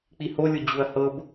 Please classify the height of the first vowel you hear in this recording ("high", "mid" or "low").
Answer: high